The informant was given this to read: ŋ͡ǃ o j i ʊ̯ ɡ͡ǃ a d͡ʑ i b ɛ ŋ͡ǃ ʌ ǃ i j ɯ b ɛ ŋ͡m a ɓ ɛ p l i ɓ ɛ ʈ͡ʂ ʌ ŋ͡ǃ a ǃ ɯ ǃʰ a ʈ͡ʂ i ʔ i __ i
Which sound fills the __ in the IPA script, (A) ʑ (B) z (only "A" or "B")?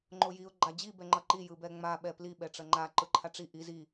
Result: B